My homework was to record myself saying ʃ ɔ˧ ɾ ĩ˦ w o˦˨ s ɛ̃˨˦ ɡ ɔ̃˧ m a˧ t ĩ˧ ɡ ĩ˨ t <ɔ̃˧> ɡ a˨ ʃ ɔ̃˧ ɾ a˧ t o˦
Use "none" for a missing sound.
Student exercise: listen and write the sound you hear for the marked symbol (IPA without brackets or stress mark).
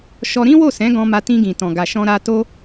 ɔ̃˨